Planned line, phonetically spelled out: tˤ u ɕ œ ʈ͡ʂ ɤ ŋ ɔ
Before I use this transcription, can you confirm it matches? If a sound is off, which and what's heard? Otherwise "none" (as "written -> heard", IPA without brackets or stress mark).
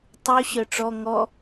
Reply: ɤ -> ɔ